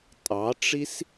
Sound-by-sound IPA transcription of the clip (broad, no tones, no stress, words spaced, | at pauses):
tʼɑʈ͡ʂis